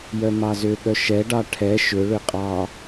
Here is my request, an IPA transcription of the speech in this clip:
jœmɑzʏɠœ ʃɛɖɑ ʈʰɛ ʃʏɭʏ qʼɑ

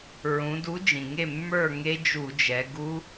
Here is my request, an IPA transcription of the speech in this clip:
ɹũ˩˧du˨˥ d͡ʒĩ˩ŋe˥˨ mːə˞˥˨ ŋe˦˥d͡ʒu˧˩˧d͡ʒɛ˩˧ ɡu˦˥

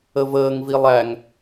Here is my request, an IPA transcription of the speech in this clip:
əvəːŋvi lˠæŋ

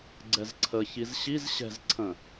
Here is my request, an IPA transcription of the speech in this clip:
ɡ͡ǀɛzǀʰə çizɕiz ɕɛ̤z ǀʰə̃

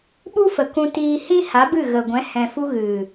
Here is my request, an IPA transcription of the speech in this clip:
ɓu˦fə˨ kũ˧tiː˧ hĩ˦ ha˨˦bɨ˦˨ɣə˨ɡʷɛ̃˨˦ hɛ̃˨fu˧ ɣɨ˨

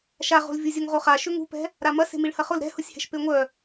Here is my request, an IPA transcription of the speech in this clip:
ʃaʁo̤l vʲuzʲʊŋʁoχa ʃʏŋṳpɛ̤ | ɾamɐ se̤miɭhɐχʊl ɾɛ̤hʊsʲhɛ̤ʃ peŋʷœ

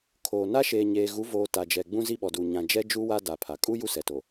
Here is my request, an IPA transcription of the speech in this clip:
kʰoː˨ na˦ʃeː˨ ɲeː˨ɣu˨˦voː˨ ta˨d͡ʒɛ˨ ɡ͡bũ˦zi˦ɓɔ˨du˨ ɲã˨d͡ʒɛ˦d͡ʒu˦ wa˦ da˨pʰa˨ kʼu˦ ju˦sɛ˨to˨

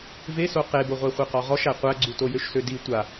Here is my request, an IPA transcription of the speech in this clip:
veso qeboʁʷæ χʷeqɔʁɔʃæ qʷæɡ͡ǀu tojøʃsødi tʷa

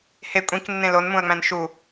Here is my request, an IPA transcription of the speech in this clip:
he kʷʼĩknːẽ lonmũɐ̯ŋ͡mæ̃n ʃu

